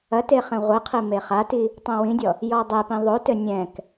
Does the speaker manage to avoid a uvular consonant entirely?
no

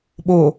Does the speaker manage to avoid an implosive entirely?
no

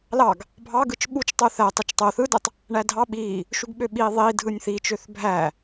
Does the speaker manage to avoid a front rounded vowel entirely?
no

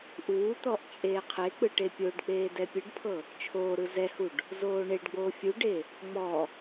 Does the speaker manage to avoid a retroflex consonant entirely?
no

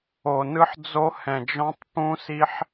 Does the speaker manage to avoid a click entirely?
yes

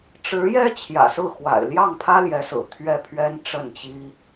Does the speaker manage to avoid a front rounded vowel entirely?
yes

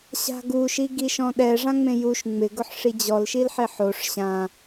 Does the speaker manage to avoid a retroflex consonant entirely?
no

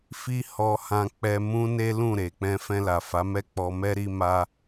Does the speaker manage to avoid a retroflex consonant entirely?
yes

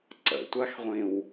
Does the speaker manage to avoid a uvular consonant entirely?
no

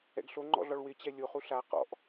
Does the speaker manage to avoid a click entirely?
no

